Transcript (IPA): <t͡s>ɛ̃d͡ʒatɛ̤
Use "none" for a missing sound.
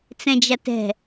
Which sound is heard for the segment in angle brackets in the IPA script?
t͡s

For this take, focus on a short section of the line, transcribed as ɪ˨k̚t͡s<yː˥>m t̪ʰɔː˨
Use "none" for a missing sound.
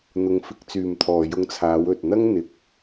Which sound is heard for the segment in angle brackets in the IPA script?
yː˨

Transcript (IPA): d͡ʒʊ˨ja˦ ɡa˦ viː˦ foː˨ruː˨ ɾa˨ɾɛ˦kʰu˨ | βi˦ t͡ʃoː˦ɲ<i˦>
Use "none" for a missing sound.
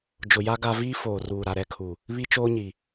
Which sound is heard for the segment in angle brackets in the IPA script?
i˨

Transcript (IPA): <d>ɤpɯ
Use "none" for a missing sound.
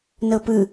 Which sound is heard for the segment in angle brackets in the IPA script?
n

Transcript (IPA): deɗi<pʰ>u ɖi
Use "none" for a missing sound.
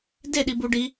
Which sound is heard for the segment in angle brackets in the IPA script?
b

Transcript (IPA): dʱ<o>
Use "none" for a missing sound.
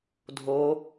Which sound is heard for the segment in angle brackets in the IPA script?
o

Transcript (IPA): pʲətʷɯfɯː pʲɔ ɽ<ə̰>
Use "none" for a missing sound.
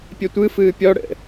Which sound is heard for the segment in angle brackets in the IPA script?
ə̰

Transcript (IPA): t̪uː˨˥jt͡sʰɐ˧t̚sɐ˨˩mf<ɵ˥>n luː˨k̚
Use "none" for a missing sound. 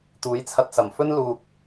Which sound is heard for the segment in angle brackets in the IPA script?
ɵ˥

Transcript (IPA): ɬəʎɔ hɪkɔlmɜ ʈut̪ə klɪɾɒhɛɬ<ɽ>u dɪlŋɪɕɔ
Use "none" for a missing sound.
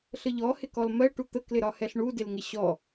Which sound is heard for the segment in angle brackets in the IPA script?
ɳ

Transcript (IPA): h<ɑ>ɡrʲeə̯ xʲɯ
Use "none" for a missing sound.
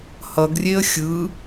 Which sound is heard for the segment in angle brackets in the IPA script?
ʌ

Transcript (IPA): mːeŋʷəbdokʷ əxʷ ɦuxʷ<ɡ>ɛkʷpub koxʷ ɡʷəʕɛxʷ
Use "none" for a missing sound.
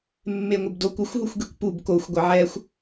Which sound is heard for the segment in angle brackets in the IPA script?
ɡ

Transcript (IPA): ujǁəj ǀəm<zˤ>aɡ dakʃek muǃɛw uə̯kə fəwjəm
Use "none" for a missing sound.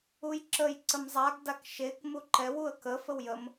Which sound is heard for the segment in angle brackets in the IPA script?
zˤ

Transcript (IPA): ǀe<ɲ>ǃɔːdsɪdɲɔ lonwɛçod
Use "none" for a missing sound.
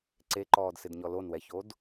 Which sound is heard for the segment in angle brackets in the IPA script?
none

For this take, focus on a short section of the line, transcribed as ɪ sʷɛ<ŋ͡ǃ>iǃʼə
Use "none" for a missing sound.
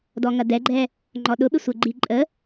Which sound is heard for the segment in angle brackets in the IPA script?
ɡ͡ǃ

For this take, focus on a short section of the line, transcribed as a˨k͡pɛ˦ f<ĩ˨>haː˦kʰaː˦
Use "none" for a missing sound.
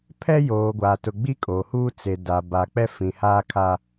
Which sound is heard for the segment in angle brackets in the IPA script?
ĩ˨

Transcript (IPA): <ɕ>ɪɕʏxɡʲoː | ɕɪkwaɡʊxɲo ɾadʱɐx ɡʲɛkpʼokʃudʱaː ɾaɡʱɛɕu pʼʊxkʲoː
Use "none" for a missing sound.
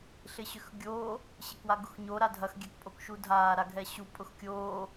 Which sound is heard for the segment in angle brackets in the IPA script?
ɬ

